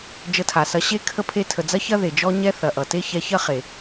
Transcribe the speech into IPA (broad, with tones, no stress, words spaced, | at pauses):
d͡ʒə˧tʰa˨sɐ˧ ɕe˦ kʰə˦ pʰe˧tʰə˨d͡zɐ˦çɐ˦ ðe˨d͡ʒɔ˦ ɲɛ˦θɐ˨ʔʌ˨te˦ çɛ˧çɐ˦χe˨